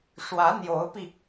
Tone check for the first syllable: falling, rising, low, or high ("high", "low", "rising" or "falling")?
rising